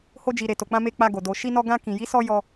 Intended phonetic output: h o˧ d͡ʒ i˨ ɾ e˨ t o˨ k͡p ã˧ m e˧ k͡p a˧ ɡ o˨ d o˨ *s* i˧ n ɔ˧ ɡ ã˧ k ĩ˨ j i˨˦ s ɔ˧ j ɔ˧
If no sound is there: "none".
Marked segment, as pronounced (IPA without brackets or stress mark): ʃ